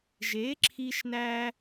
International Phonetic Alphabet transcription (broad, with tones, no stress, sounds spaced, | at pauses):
ʒ e˩˥ ǁʰ i˧ ʃ n æ˧